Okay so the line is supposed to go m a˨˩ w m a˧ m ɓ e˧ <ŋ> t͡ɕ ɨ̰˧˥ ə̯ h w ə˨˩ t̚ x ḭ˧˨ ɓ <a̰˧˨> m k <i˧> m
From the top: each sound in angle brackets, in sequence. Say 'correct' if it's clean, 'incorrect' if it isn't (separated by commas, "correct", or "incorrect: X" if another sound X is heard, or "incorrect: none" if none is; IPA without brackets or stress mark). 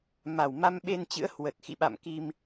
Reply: incorrect: n, correct, correct